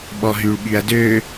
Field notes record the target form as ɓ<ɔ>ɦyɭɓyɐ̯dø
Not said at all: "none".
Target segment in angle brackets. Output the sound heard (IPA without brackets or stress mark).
ɔ